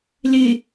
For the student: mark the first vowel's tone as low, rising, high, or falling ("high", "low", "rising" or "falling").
low